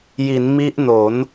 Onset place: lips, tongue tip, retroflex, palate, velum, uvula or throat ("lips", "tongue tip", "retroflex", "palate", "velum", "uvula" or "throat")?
palate